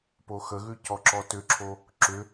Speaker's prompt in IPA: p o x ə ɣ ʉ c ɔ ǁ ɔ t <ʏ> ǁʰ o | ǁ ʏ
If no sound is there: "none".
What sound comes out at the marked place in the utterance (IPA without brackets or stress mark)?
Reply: ʏ